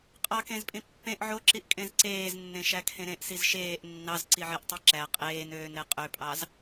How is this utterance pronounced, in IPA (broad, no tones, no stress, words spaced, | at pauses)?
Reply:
qʼɑkẽzpʼĩ pːẽʔ ʕoǁiʔkʼẽz ǀeːznːẽʃækʰẽ ɾẽʔsiz ʃeːʔ nːɑzǀiʕeʔtˤi ǁæ qʼeːnøːnɾe qʼøpʼɑz